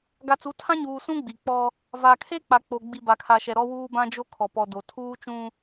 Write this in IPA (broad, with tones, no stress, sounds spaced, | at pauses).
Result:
ɡ a˨ t͡s u˨˦ tʰ ã˦ ɲ uː˨ s ũ˦ ɡ͡b i˨ k͡p ɔ˦ | v a˨ kʰ e˦ k͡p a˨ k͡p o˨ ɡ͡b i˨ b a˨ kʰ a˨ ʃ ɛ˨ ɾ ɔ˦ w uː˦ b ã˦ d͡ʒ o˦ kʰ ɔ˨ p ɔ˨ d o˨ tʰ uː˦ t͡ʃ ũ˦